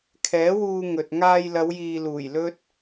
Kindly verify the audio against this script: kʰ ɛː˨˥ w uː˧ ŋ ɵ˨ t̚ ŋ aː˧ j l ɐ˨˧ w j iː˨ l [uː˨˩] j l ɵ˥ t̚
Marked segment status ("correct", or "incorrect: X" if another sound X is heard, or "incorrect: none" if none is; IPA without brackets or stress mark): correct